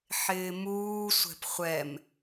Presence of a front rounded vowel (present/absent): absent